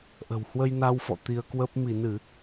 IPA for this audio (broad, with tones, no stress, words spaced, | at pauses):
ʔə̤˨˩whwə˧j na˧wfɔ̰˧˨ t̪i˧ə̯kwə˦˥p̚ mi˧˩nɨ˧˩˨